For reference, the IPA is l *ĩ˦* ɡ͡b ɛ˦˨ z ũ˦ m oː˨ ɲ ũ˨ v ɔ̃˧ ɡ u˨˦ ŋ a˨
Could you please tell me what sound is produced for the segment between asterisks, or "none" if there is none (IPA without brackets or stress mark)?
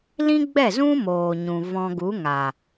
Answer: ĩ˦